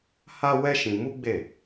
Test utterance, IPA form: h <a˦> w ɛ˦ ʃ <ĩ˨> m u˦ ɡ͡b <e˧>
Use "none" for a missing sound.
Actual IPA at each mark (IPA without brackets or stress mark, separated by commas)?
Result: a˦, ĩ˧, e˦˨